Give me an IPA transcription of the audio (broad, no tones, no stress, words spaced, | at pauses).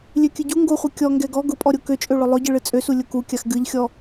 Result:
lʲøkʲɨɟu ŋɡoχʷɨ kʲɔ ŋɡɛɡɔ ɡʊpʼɔ ɾʲokøt͡ʃʼøɭʊ lˠʊɟɨɭɨ t͡sʼøsu lʲʊkukʲax ɡɨʎxʲɔ